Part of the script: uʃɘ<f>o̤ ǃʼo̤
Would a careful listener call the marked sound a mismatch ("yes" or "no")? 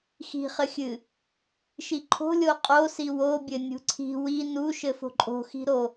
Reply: no